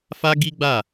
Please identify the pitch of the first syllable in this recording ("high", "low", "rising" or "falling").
high